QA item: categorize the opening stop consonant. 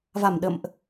implosive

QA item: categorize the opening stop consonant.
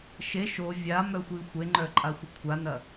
click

